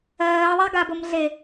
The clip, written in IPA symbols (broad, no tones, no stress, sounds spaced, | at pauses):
ɜː ðˤ a ɡ a b o m ɮ e